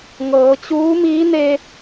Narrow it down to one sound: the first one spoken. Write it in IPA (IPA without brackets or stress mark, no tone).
ŋ